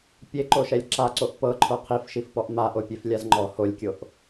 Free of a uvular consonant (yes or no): no